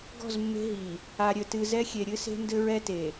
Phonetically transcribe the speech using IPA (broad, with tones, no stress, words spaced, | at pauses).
ɡɔ̤˦˨zmːe̤˦ ɦi˨ | a˨ɾʲɘ˨tɨ˨ zɛ˦xʲe˨ɾʲɨ˦se̤˦ ndɘ˦ɹɛ˦te˨